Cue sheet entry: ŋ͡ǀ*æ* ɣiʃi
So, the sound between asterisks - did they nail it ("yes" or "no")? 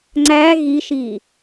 yes